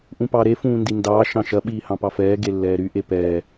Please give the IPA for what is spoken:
ʔũpɑɾe fũːndindɑː ʃɑ̃ʃɐ ɓiːhɑ̃pɑfɛː ɡelːɛːɾy ʔepɛː

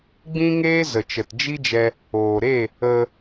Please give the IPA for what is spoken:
ɡ͡bĩ˦ŋeː˦ zə˨t͡ʃə˨td͡ʒi˦d͡ʒɛ˧ | oː˨ɾe˦˨ | ə˧

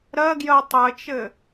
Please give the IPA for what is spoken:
ɾɜɡjɜ tˤɘt͡ʃɘ

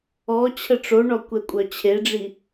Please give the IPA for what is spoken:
ɔ t͡ɕʰəʈ͡ʂoɳɔ kʷɛkʷʼœt͡ɕʰeɖ͡ʐi

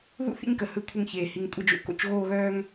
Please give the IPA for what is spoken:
ðṵ˦ θḭ˦ɲkə˨ hɯ˦˨kʷʰɯ˧ŋçeː˨ hi˨ŋ kʷʼə˦˨d͡ʒo̰˧ko̰˧t͡ʃ ɣoː˦˨ɣœː˦ŋ

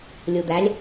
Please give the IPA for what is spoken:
lʲud̪ælʲ

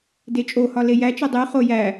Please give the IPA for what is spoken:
det͡ʃʼohɒ lejæt͡ʃe dˤiχo jæ

